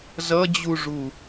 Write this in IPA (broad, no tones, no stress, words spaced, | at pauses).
zʌd͡ʑuʐu